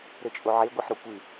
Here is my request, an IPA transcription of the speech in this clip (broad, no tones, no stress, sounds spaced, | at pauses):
ɾ ɘ t͡ʃʼ o ʕ e ɡʷ ɛ ħ ɾ o kʷ ɨ